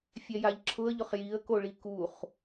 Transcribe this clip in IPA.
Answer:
fʲ ɛ j a ʎ ǁʰ ʊ ə̯ ʎ ʊ χ j i ə̯ k o ɭ i k u χ

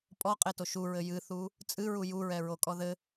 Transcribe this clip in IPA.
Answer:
pʼ ɔ qʼ e t o ʃ u ɹ ɘ j ɨ θ u | t͡sʼ ɨ ɹ u j u ɹ ɛ ɹ o kʼ ɔ ð ɘ

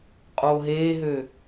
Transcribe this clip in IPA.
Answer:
qʼ oː ɦ eː ɦ ø

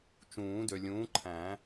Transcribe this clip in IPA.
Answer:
t͡ʃ ũː˨˩˦ d ø˨ lʲ ũː˨˥ ǃʰ æ̃˨˩˦

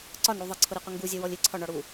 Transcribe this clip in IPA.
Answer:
ǀ ɒ n ɽ u ðˤ ʌ ǀʰ ʊ ɾ i qʷ ə ŋ ɡ u zʲ ɛ w ɔ lʲ ɪ ǀʰ ɒ ɳ ɒ ɽ u

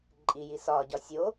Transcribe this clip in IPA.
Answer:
ǃʼ i j i s ɒ ɟ ɒ sʲ o

